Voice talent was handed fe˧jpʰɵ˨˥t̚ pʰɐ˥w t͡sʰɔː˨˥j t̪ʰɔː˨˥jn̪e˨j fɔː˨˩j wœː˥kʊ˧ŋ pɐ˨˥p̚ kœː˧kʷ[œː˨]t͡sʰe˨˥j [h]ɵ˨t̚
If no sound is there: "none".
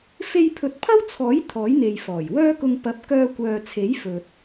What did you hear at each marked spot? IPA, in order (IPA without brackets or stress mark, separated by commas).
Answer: œː˨, f